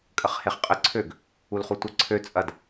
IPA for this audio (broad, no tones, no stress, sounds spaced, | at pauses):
kʼ ə χ h e χ qʼ ə ǀʰ ø ɡ | u l χ u tʷ ə ǀʰ ø t͡sʼ ɐ d